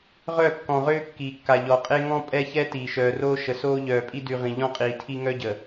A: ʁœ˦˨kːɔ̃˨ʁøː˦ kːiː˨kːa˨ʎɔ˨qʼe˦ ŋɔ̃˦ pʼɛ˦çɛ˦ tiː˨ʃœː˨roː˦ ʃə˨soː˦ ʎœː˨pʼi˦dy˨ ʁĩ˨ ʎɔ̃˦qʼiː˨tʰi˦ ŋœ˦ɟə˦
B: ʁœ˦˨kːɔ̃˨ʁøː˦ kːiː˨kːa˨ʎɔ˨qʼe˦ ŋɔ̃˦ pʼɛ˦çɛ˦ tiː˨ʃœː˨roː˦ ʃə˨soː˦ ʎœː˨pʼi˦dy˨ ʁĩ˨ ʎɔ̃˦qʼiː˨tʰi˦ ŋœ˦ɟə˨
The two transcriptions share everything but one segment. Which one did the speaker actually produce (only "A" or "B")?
B